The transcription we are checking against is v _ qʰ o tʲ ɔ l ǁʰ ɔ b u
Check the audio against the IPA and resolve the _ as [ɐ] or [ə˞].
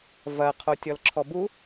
ɐ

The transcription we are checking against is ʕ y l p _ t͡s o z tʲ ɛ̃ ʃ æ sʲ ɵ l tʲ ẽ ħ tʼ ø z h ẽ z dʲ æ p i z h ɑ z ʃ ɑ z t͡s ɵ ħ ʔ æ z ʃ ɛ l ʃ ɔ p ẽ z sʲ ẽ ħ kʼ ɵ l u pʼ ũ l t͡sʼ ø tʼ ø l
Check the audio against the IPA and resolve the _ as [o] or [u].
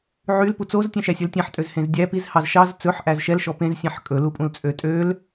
u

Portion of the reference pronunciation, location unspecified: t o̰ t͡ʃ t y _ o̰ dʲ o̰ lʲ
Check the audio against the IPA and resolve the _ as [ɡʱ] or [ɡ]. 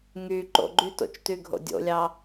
ɡʱ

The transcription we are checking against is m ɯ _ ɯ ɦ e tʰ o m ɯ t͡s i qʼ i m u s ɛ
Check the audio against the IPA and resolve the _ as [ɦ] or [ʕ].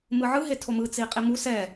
ʕ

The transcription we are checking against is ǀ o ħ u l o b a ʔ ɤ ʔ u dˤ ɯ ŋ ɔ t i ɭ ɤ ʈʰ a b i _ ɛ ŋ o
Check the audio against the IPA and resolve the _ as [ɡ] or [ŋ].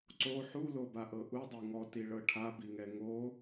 ŋ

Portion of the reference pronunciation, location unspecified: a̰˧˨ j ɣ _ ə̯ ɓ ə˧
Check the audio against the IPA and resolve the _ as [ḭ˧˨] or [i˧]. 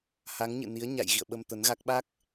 ḭ˧˨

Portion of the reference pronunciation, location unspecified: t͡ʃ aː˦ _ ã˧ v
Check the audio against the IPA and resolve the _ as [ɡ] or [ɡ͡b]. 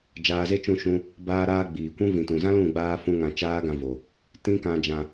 ɡ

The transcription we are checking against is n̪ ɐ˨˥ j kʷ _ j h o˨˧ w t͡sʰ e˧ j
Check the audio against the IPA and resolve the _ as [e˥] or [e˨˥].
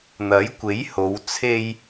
e˨˥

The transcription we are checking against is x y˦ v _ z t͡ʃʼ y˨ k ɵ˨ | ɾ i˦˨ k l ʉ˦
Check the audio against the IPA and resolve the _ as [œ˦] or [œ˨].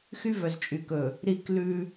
œ˨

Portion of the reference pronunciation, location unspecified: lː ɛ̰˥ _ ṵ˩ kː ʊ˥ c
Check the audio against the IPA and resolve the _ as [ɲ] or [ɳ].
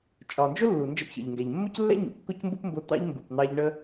ɲ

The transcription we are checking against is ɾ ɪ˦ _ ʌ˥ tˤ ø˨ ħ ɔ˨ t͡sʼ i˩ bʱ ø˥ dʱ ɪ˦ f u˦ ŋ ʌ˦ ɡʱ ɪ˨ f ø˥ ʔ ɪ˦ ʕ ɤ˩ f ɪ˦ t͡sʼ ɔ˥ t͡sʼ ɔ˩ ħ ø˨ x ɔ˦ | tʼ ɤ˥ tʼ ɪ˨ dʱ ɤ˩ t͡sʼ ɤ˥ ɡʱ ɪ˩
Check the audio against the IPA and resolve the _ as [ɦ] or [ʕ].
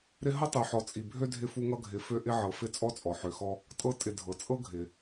ɦ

